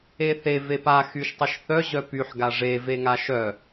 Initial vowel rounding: unrounded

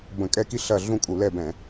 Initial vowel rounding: unrounded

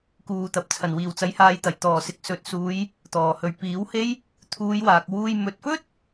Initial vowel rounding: rounded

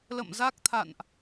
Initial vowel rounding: unrounded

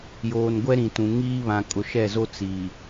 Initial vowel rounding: rounded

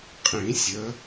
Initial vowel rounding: unrounded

